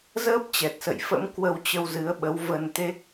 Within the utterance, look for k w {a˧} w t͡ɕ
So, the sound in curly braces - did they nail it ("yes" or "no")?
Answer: no